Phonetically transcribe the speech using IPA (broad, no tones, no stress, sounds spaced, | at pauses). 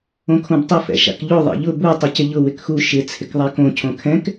õ kʰ õ b tˤ ə f ɛ̰ ʃ a̰ k ʎ o ðˤ ɛ̰ ʎ ʊ b u tˤ ə c ɪ ʎ ʊ w ɪ k x u ʃ ɪ t͡sʰ ɪ k ðˤ a k õ cʰ õ kʰ ɛ̃ k